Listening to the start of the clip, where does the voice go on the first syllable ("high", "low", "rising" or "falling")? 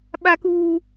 high